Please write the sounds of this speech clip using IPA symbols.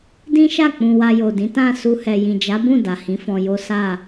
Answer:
d ĩ˦ ʃ a˦˨ k͡p ũ˨ w a˧ j o˨ d ĩ˨˦ t ã˦˨ s u˧ h ɛ˨ j ĩ˨ d͡ʒ a˨˦ b ũ˦˨ d a˨ h ĩ˨˦ f ɔ̃˧ j o˦ s a˦˨

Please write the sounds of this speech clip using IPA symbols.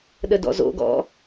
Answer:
ɗ ə d ɔ̰ z o̰ ɡ ɔ̰

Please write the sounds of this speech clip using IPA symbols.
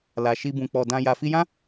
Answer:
l a˨ ʃ i˧ b ũ˨ k͡p ɔ˨ d ã˧ j a˨ f i˧ j ã˦

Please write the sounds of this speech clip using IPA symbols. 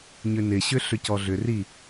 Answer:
ɲ ʏ n ɪ ɕ ʏ ɬ ʏ c ɔ ɮ ʏ r i

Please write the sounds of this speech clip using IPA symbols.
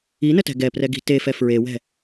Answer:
i n ə t ɛ̤ ɡ ɛ p r ɛ ɡ i̤ t e f ɛ f ɹ e w ɛ̤

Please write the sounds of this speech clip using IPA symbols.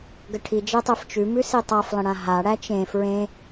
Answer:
ɡ ə ʈʰ i d͡ʒ e tˤ e f t͡ʃ ʉ m ʉ s i tˤ a f lˠ ə̃ ɽ ã ɦ a ɽ æ t͡ʃ ẽ f ɹ ẽ

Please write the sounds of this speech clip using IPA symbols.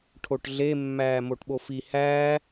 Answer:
ʈʰ o ʈ ɮ e mː æː m o ʈ ɓ o f i h æː

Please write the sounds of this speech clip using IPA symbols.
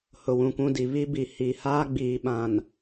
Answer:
h ʊ˨ w ũ˨ kʷ ũ˦ d i˨ β i˦ b i˨ h i˨ h aː˦ ɡ͡b iː˨ ɓ ã˨ n

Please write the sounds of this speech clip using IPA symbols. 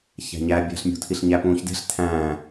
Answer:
ç æ̤ ɲ æ bʲ æ̤ ɬ mʲ ṳ tʰ i ɬ ɲ æ p ũː ç d e̤ ɬ tʰ æ̃ː

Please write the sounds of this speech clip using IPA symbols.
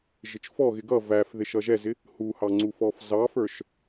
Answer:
ʒ ɪ t͡ʃ f ɔ ɣ ɪ ɡ ʌ v æ f ð ɪ ʃ ʌ ʒ ɛ z ɪ | h u h ɑ ŋ͡ǀ u f ɔ f z ɑ f ə˞ ʃ

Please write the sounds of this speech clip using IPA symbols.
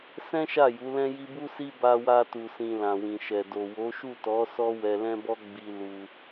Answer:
s ɛ̃˦ ʃ a˦˨ j u˨˦ l ɛ̃˦ j i˧ b u˦ s i˦ b a˧ w a˧ t u˨ s ĩ˨ l ã˨ w ĩ˨ ʃ ɛ˨ d o˨ w o˨˦ ʃ u˦˨ t ɔ˨˦ s ɔ˦ w ɛ˧ l ɛ̃˦ b ɔ˦ ɡ͡b i˦ l u˧

